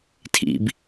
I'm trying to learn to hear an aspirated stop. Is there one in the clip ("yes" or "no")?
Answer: yes